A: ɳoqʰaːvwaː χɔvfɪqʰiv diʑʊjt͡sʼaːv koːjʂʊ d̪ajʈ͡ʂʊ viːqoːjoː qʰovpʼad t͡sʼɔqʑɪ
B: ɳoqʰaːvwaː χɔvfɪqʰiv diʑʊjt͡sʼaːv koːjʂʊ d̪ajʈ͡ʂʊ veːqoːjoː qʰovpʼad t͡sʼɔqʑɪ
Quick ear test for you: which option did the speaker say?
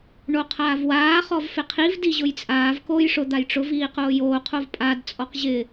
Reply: A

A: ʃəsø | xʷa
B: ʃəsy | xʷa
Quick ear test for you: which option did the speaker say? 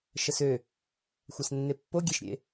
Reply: A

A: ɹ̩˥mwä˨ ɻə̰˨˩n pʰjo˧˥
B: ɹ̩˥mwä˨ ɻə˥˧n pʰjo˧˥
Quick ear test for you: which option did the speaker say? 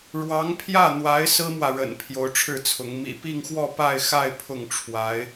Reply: A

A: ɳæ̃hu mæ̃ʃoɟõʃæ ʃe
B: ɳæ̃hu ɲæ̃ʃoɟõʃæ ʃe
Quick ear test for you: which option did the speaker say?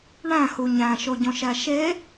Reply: B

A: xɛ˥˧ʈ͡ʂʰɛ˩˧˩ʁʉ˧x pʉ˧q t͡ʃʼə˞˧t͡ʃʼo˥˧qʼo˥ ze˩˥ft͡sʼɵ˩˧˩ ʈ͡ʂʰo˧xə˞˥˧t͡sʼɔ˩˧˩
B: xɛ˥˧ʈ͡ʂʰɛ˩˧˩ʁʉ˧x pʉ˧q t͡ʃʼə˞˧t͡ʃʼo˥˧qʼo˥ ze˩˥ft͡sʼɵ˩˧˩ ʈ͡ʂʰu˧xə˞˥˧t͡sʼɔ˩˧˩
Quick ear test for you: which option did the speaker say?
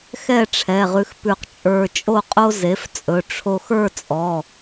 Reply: A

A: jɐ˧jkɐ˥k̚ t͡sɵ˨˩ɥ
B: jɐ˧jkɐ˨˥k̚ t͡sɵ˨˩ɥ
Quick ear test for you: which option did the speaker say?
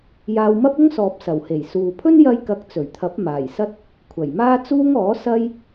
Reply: B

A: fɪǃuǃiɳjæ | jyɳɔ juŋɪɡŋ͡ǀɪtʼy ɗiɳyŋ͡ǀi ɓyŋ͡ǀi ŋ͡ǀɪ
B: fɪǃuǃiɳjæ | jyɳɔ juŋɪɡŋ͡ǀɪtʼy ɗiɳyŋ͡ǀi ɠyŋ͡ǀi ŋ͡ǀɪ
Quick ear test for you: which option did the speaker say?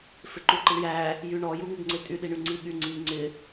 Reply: B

